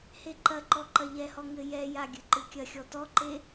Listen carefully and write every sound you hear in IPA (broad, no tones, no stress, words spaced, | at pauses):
heǃɐǃɔ ǃɐʎɛhɔ ŋɘjɛja ɡʲɨǃɨkʲɐxʲɔ tɔǃe